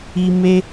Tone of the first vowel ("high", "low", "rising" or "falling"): high